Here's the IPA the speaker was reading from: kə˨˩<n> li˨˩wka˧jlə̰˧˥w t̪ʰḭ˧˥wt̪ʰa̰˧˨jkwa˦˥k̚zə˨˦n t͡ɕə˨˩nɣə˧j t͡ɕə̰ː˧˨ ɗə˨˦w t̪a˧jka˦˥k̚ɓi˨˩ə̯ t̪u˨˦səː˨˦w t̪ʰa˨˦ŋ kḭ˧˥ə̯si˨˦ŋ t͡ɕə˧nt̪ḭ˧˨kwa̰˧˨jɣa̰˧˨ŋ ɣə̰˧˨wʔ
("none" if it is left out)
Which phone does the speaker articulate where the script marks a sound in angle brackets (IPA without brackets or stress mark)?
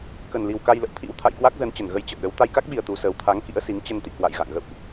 n